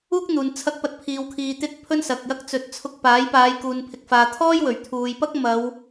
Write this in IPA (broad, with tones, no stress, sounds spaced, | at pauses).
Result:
uː˥ k̚ n̪ uː˨ n t͡sʰ ɐ˥ k̚ p ɐ˧ t̚ pʰ iː˨ w kʰ iː˨ t̪ ɪ˧ k̚ pʰ ɵ˥ n s ɐ˨ k̚ j ɐ˥ k̚ t͡s ɵ˨˥ t̚ t͡sʰ ʊ˧ k̚ p aː˨˥ j p aː˨˧ j k uː˨ n pʰ ɪ˨ k̚ f aː˨ t̪ʰ ɔː˥ j w ɵ˨˩ ɥ t̪ʰ uː˨ j p ɐ˥ k̚ m ɐ˨˧ w